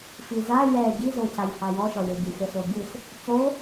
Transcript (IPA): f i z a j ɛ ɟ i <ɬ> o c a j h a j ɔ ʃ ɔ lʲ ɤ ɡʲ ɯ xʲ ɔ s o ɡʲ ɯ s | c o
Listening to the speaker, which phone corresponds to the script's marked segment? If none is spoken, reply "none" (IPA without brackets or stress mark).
z